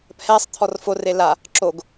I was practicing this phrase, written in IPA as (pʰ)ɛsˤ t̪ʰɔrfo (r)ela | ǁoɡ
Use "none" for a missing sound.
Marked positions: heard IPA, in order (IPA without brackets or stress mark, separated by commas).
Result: pʰ, r